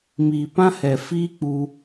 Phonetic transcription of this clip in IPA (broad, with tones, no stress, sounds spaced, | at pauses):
m iː˨ p ã˦ h ɛ˨ f iː˦ k͡p u˧